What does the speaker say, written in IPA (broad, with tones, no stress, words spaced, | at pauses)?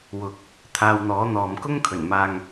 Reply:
wʊ˨k̚ | t̪ʰaː˧wn̪ɔː˨˥n̪ɔː˨m kʊ˥ŋ kʰɵ˨˩nmaː˨ŋ